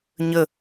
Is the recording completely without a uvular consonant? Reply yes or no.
yes